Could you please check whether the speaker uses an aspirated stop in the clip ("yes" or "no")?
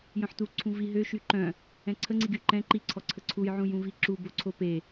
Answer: yes